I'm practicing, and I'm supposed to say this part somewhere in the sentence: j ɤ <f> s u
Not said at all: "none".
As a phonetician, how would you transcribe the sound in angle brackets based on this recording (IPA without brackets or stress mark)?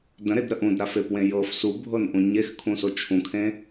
f